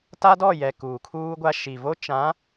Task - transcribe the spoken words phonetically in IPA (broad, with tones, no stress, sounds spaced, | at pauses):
t a˦ d ɔ˦˨ j ɛ˨ k uː˨ kʰ uː˦ ɡʷ a˦ ʃ i˨ v o˦ t͡ʃ ã˨˦